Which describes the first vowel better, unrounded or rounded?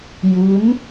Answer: rounded